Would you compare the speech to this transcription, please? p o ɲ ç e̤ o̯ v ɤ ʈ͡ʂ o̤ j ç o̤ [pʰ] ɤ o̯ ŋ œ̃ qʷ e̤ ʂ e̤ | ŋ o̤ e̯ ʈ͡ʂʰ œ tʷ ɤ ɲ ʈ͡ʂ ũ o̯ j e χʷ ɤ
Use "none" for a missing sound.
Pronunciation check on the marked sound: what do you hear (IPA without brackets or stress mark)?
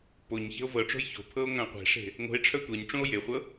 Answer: pʰ